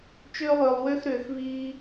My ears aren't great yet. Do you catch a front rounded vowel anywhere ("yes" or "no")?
yes